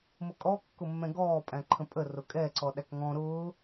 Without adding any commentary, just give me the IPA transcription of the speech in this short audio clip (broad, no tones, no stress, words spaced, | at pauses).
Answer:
mʊkʼɔkːʊmːɛ̃ ɡɔːpʼæ̃ǃʰə̃ pʼə rʊkʼɛ ǀɔɗækŋɔ̃ ɾʊː